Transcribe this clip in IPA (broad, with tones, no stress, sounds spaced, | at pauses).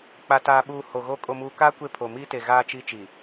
k͡p a˨ t aː˨ ɓ uː˨ h o˨ ɣ o˦ kʼ o˨ m uː˨ k aː˦ kʷ e˦ pʰ o˨ m iː˦ t e˨ ɣ aː˦ t͡ʃ i˦ t͡ʃ i˨